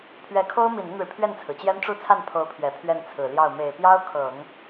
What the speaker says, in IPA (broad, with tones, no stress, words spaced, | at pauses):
pʰɥɛ˧˥kʰo˥ʊ̯ mi˨˩nə˥˩nɻɻ̩˩ pʰɥɛ˥˩nt͡sʰɹ̩˩t͡ɕjɛ˥n ʈ͡ʂu˥˧t͡sʰa˥˩n pʰo˧˥ʊ̯pʰɥɛ˨˩ pʰɥɛ˥˩nt͡sʰɹ̩˨˩ljɑ˥˩ʊ̯ me˨˩ɪ̯pjɑ˥ʊ̯kʰɤ˨˩˦ŋ